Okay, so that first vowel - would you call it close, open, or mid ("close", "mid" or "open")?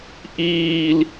close